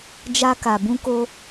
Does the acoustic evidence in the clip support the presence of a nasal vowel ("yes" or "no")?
yes